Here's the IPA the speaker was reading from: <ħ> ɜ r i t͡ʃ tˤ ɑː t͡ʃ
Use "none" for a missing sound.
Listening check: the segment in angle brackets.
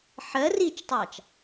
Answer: ħ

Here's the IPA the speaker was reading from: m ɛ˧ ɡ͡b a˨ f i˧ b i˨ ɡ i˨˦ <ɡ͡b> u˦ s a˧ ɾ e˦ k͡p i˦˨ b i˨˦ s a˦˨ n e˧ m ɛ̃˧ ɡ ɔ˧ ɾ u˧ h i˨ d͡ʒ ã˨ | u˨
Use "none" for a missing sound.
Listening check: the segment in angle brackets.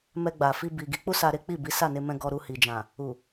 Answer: k͡p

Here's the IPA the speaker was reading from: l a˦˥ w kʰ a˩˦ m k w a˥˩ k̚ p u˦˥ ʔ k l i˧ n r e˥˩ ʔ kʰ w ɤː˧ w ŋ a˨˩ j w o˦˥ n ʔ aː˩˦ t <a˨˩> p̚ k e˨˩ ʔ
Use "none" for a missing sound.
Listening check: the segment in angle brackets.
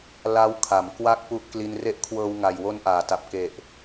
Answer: a˨˩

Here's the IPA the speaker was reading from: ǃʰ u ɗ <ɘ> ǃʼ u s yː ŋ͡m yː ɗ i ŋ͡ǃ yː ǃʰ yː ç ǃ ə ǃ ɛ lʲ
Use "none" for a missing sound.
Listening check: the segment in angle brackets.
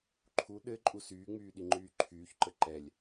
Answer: ɘ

